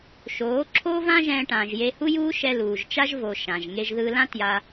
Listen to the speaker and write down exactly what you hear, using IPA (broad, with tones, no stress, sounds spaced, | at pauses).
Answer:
ʃ oː˨˦ ǁʰ oː˦ v ã˦ ʒ ɛ̃ː˧ ʈ ãː˨ ʒ j e˧ h u˦ j uː˦ ʃ ɛ˧ l uː˨ ʒ t͡ʃ a˦ ʒ v o˧ ʃ ã˨ ʒ ŋ e˧ ʒ ð ɯː˧ l ã˦ t j a˧